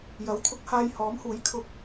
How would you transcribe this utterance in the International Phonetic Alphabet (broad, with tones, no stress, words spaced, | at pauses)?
jɐ˨˥w t̪ʰʊ˧k̚haː˧jhɔː˨˥mhuː˨˥j kʰʊ˧k̚